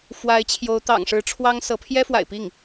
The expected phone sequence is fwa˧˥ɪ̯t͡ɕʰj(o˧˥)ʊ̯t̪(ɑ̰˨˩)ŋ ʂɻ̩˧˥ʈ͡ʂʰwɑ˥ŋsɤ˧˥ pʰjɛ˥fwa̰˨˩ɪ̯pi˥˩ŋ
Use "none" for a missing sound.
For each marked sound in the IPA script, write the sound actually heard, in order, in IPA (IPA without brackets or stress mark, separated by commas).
o˧˥, ɑ̰˨˩